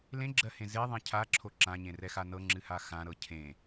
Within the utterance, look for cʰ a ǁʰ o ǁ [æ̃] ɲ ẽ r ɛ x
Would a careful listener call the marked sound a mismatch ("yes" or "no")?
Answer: yes